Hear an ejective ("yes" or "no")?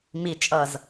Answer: yes